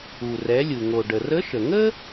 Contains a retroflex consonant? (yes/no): yes